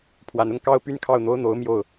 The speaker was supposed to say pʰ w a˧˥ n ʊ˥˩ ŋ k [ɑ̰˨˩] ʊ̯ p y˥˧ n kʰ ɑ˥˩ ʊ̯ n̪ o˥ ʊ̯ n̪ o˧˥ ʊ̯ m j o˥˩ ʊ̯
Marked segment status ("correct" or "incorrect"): incorrect